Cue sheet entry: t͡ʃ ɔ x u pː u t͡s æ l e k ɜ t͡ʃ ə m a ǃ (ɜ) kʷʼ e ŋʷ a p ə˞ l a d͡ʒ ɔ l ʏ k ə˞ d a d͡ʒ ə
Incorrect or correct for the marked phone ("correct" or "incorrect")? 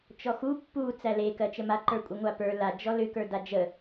incorrect